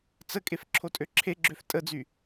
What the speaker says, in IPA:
t͡s ə kʼ e f ǁʰ o tʼ ø ǁʰ e ɡ͡ǁ ø f tʼ ə d͡z y

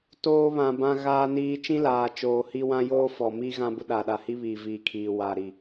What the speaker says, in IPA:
t oː˦ β ã˨ b ã˦ ɣ aː˦ n iː˦ t͡ʃ ĩ˦ l aː˨ t͡ʃ oː˨ h i˦ w ã˦ j oː˦ f ɔ˨ m iː˦ ɣ ã˦ b ʊ˦ ɗ a˨ ɗ a˨ h i˦ β iː˨ v iː˨ kʰ iː˨ w aː˨ ɾ i˨

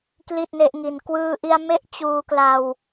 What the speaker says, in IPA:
k l i˥˩ t̚ n e˦˥ ʔ ŋ i˧ n k w ɯː˧ ʔ i˧ a̯ m e˦˥ ʔ t͡ɕ uː˧ k l a˧ w

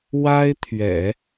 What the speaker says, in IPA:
w a˥ ɪ̯ t̪ʰ ɥ ɛ̰˨˩˦

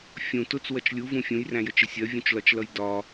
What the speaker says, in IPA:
fʲ ũ t ʊ t͡s w ʌ t͡ʃ lʲ u v ũ fʲ ũ j r æ̃ j ə t͡ʃ ɪ sʲ ɜ vʲ ũ t͡ʃ l ɒ t͡ʃ l ʌ j d ɒ

